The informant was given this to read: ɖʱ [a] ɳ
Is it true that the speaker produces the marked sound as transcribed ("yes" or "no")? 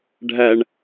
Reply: no